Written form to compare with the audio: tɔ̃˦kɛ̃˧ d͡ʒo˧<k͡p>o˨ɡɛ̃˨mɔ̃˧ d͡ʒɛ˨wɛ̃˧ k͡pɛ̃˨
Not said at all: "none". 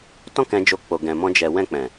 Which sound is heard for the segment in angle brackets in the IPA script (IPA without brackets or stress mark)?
k͡p